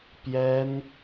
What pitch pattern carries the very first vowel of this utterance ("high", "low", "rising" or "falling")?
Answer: high